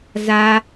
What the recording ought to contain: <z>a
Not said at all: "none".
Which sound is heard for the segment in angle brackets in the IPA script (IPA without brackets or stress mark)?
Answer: z